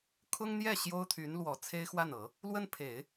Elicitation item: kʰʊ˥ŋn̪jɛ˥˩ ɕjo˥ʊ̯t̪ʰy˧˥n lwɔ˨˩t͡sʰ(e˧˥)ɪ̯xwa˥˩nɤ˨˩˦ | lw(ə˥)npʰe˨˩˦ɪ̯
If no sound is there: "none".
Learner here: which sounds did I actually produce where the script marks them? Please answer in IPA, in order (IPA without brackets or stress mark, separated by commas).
e˥, ə˥